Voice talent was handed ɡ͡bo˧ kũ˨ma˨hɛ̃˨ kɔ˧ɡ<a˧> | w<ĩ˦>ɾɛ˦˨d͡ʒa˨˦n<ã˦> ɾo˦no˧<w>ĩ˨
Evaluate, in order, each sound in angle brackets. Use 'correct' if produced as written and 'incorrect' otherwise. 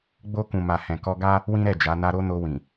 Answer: incorrect: a˦, correct, incorrect: a˦, correct

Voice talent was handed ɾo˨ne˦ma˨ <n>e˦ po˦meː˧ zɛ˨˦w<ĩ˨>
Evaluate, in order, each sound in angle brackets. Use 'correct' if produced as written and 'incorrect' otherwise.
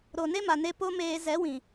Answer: correct, correct

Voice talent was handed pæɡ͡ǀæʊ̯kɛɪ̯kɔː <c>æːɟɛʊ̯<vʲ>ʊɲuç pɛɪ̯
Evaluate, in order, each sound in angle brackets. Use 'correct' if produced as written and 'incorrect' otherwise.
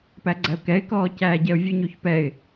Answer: correct, correct

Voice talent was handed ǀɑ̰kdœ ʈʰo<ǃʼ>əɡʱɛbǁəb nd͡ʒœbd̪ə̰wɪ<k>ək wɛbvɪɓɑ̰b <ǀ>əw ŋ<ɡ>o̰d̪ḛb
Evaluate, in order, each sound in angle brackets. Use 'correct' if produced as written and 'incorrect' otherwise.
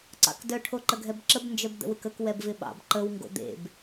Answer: incorrect: ǃ, correct, incorrect: ǃ, correct

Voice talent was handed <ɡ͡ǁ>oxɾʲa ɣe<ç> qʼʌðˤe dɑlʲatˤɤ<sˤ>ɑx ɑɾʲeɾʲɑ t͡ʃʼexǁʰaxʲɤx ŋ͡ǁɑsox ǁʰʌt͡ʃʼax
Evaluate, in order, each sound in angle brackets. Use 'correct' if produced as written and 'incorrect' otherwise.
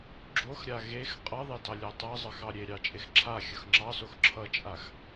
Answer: correct, incorrect: x, incorrect: zˤ

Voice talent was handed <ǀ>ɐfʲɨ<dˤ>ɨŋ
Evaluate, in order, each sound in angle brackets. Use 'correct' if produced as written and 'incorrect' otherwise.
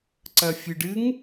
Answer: correct, incorrect: ɖ

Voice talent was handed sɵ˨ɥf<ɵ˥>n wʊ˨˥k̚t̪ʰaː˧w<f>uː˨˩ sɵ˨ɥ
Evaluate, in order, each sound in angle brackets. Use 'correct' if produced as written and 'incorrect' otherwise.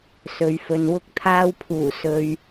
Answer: incorrect: ɵ˨, incorrect: pʰ

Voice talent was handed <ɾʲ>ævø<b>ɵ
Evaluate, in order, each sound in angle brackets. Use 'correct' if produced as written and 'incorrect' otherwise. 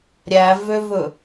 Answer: correct, incorrect: v

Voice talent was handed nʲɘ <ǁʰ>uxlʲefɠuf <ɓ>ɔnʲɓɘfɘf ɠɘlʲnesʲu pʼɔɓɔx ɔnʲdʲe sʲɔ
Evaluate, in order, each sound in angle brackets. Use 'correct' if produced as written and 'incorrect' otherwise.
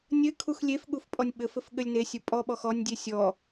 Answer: incorrect: kʰ, incorrect: pʼ

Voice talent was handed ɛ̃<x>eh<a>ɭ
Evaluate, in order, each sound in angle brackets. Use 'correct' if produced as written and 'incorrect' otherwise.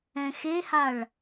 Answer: correct, correct

